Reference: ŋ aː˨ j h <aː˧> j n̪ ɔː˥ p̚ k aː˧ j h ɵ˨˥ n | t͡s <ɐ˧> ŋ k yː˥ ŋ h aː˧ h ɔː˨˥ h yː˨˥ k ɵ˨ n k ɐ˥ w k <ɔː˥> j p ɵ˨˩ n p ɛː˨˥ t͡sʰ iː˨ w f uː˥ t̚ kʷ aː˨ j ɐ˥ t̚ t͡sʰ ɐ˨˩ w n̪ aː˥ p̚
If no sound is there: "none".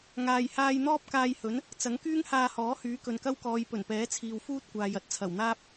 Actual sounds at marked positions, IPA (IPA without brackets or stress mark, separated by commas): aː˧, ɐ˨˥, ɔː˨˧